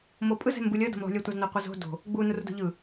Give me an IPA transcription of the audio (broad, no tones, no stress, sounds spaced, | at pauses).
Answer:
m o pʼ ɯ z ɛ̤ m b ɯ lʲ ʌ d o̤ m lˠ ṳ lʲ ʌ tʷ a z n o qʷ ʌ z o̤ d o̤ | ɡ͡b u n u r d o̤ ʎ ɯ